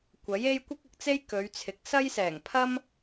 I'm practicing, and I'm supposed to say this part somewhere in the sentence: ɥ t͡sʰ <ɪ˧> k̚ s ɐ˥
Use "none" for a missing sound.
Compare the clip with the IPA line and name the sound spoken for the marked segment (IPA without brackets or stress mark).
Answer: ɪ˨˥